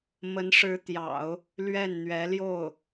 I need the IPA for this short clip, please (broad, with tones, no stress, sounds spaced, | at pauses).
m ə˧˥ n ʂ ɻ̩˧˥ t̪ j ɑ̰˨˩˦ ʊ̯ | l ɥ ɛ˥˩ n n̪ ɥ ɛ˧˥ l j o˥˩ ʊ̯